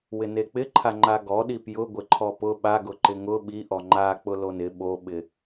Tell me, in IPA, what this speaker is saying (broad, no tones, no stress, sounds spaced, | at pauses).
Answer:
w ɪ n e k͡p ɪ ǃʰ a ŋ͡ǃ a ɡ ɔ ɗ i p j ʊ ɡʷ ɪ ǃʰ ɔ p ʊ ɓ a ɡ ʊ ǃ ɪ ŋ ʊ ɓ i ʔ ɔ ŋ͡ǃ a k͡p ʊ l o n ɪ ɓ o ɓ ɪ